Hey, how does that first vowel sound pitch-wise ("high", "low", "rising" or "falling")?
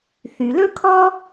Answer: low